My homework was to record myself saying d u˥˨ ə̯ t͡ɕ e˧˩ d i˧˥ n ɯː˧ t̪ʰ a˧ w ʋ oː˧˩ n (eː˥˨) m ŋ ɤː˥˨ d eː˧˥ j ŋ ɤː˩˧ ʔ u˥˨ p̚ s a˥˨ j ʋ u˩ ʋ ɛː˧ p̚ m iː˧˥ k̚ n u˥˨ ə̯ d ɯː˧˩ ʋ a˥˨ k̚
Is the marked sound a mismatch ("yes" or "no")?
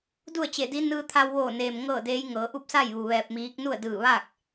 yes